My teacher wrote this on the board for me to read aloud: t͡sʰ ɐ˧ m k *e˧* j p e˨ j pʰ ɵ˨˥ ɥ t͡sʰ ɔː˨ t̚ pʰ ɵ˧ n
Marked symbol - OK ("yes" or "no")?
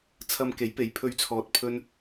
no